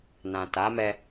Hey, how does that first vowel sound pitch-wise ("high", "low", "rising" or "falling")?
low